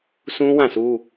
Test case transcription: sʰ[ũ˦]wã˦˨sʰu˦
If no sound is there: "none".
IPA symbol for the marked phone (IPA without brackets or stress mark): ũ˦